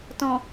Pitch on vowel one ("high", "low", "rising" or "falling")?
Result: low